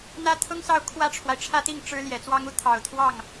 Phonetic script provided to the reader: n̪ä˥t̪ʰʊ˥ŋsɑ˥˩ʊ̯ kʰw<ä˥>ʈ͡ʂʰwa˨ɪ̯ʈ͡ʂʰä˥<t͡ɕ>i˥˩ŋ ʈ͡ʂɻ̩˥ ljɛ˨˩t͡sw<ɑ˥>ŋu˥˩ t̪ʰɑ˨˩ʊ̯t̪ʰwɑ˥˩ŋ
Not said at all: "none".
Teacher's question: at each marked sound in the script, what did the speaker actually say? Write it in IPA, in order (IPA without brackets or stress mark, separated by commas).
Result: ä˥, t̪, ɑ˥